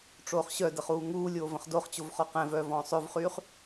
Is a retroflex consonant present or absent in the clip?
present